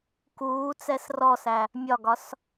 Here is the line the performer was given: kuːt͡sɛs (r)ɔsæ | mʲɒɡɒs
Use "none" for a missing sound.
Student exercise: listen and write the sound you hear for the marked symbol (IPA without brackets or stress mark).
r